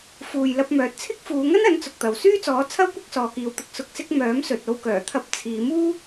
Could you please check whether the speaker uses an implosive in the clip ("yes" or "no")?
no